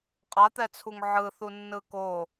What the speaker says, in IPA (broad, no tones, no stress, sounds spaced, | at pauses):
qʼ a t̪ ɛ t͡sʰ u ŋ ʕ ɯ θ u nː ɯ k o